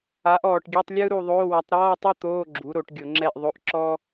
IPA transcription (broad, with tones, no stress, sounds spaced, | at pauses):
a˩˥ ʔ ɔː˨˩ ʈ ɡʲ ɛ˧˥˧ tˤ lʲ ɯ˥ ɾ u˦˨ ðˤ oː˧˥˧ w a˩˥ tˤ ɾ ɔː˧˥˧ tˤ ɤ˥ t̪ oː˧˥˧ ɡ͡ǁ u˩˥ ɾ o˧˩˧ ʈ ɡʲ o˧˩˧ ŋ͡ǁ ɛ˦˨ ʔ ðˤ o˧˥˧ ʔ ǁ ɔː˥